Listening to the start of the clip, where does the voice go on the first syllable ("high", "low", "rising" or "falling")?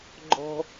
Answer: high